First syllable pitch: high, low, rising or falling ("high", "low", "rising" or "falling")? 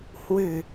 low